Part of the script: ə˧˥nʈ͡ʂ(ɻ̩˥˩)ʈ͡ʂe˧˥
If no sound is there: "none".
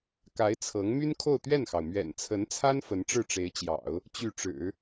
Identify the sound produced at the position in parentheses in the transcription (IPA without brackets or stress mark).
ɻ̩˥˩